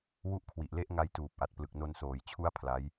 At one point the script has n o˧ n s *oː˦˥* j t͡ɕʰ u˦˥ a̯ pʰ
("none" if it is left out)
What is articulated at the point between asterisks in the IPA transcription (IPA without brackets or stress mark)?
oː˨˩